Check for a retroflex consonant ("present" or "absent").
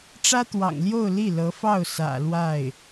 present